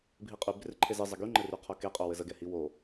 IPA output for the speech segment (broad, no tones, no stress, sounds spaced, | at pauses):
bʱ i qʼ y b r ɪ ǃʰ e z ɨ zˤ ə ɡ y ŋ͡ǃ ɘ r y qʰ o k e qʼ o w ɘ z ə ɡ ɛ h i w o